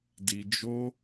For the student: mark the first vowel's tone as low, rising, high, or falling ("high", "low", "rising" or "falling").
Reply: low